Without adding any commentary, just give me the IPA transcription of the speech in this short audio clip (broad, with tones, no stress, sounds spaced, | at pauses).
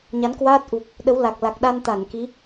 ɲ a˨˦ n k w aː˦˥ t̚ ʔ u˨˩ k̚ | ɗ ə˨˦ w l a˨˩ k̚ l a˨˩ k̚ ɗ a˧ n t̪ a˧˩ n k i˨˦